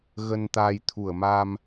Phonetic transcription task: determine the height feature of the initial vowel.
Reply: mid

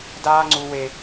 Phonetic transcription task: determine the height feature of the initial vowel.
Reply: low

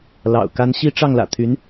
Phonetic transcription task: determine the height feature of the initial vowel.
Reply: low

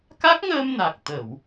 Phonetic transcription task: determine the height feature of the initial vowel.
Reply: low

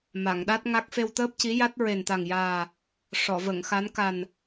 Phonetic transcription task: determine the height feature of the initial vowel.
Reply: low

